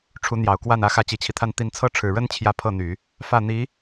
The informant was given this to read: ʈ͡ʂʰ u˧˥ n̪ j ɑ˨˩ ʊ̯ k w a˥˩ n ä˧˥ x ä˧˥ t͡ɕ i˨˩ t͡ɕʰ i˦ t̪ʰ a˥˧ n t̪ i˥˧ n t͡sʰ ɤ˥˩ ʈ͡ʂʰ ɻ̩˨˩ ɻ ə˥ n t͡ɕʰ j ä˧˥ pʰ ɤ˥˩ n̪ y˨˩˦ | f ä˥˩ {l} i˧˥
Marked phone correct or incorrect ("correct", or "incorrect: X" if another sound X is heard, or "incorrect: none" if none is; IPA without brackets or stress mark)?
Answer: incorrect: n̪